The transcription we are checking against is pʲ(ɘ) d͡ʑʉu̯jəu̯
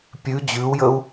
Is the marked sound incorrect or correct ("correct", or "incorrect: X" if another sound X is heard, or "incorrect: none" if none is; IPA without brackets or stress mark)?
incorrect: ʉ